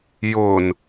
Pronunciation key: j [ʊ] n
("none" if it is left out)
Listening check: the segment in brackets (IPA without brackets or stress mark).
ʊ